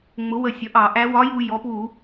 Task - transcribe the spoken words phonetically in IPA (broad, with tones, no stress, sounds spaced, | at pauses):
ŋ͡m ʊ˩˥ w ə˧˩ sʲ ʌ˩˥ ʔ ɑ˧˩˧ ʔ æ˧˥ w ɒ˧˥ j u˧ j ɔ˩˥ p w u˧˩˧